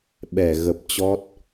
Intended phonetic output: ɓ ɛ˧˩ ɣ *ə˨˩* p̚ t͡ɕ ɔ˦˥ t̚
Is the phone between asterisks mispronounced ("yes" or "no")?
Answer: no